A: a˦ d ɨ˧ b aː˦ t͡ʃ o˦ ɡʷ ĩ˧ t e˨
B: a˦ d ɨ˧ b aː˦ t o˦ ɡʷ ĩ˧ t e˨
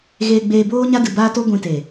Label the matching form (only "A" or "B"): B